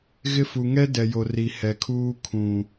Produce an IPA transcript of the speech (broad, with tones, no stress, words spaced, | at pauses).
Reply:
ɣɪ˦ fu˨ŋɛ˦ dɛ˨jo˨ ri˨hɛ˨kʰuː˦ kʰũ˨